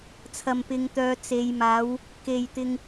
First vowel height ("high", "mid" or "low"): low